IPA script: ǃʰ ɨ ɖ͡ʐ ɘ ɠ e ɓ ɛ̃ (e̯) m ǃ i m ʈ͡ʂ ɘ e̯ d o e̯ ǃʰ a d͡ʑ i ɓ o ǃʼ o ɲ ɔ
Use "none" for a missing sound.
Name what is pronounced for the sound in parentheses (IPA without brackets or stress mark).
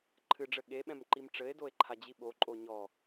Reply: none